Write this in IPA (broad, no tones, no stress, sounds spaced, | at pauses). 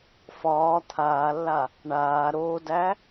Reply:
f ɒː t̪ʰ aː lː a | ɳ aː ɾ oː d æ